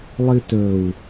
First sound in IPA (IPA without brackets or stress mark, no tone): lˠ